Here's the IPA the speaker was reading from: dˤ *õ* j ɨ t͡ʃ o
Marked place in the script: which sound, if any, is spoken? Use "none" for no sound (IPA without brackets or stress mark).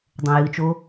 õ